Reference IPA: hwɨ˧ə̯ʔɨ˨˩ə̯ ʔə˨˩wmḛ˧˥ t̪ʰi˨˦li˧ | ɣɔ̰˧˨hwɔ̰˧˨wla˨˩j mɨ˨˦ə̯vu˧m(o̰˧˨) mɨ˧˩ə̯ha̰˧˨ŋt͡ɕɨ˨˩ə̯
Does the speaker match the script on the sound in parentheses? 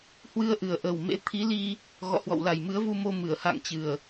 no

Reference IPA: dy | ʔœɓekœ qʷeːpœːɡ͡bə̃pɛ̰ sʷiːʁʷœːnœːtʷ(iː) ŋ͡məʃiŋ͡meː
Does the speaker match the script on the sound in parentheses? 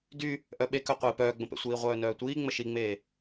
yes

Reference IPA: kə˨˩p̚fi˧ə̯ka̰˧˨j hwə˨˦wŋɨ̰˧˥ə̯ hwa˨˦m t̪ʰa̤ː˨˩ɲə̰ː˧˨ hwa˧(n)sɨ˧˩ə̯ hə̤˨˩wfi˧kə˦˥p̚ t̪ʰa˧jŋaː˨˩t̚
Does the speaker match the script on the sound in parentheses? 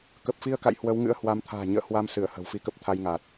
no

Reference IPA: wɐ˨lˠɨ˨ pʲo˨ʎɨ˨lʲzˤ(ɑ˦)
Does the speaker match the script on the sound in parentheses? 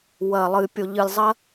no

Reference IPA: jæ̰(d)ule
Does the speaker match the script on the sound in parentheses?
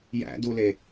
yes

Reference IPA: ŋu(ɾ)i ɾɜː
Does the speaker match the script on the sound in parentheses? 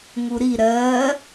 yes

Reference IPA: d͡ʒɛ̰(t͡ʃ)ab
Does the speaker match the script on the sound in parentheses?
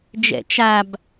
yes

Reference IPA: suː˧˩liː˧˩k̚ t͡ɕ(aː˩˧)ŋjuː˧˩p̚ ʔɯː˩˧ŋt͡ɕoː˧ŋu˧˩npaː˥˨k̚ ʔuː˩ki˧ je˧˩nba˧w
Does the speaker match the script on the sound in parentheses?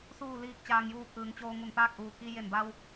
no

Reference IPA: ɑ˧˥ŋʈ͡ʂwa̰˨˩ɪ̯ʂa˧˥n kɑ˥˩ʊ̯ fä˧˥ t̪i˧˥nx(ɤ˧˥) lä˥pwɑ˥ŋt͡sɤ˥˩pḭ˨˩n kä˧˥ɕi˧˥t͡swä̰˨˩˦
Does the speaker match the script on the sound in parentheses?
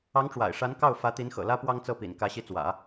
no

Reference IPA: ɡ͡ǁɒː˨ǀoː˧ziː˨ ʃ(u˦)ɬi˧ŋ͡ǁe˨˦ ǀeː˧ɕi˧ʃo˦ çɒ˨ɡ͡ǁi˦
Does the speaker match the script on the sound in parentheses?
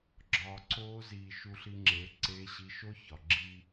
no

